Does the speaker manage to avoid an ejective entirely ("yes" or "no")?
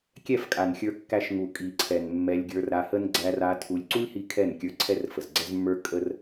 no